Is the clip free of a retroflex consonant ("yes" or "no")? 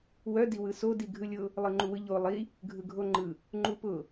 yes